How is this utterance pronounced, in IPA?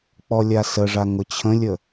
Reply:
k͡p ɔ lʲ a s ə ʐ a ŋ ʊ t͡ɕʰ ə̃ lʲ ə

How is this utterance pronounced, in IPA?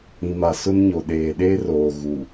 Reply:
ĩ˨ m a˨ s ʊ˦ n ɲ o˨ ɗ eː˨ ɗ eː˦ r oː˨ ɣ u˨

